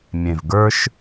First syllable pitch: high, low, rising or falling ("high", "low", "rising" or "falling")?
low